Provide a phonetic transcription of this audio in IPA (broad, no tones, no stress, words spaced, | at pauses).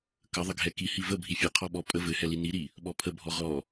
kə ðˤəɡʱɛki hivə bʱifʲɘ qʰɔɓɔ pʼə vɘhɛli niɾi | ɓɔpʰəbʱɔ ʁɔ